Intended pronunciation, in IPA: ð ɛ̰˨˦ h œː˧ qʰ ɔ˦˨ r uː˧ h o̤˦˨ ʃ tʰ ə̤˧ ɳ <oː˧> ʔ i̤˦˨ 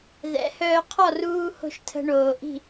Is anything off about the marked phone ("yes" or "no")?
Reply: yes